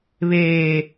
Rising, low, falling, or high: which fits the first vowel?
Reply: low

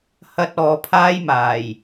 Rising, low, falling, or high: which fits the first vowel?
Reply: high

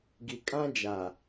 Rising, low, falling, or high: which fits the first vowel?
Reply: low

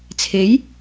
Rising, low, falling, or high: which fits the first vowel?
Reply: rising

